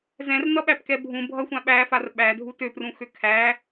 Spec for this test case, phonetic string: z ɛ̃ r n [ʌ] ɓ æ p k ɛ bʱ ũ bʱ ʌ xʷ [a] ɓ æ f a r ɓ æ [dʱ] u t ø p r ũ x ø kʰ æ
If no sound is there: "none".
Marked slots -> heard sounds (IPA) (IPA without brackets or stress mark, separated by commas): ʌ, ã, dʱ